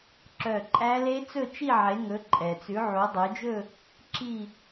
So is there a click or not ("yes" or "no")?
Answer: yes